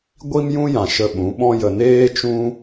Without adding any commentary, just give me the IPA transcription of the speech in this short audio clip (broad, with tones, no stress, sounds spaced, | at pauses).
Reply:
ɡʷ i˦ m j ũ˦ j ã˨ ʃ ə˧ ɓ ũ˨˦ ɓ ɔ̃˦ j ə˧ n eː˦ t͡ʃ ũ˦